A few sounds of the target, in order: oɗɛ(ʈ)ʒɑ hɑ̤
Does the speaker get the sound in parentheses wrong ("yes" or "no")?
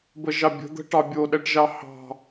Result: no